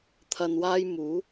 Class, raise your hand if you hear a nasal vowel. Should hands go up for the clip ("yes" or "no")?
no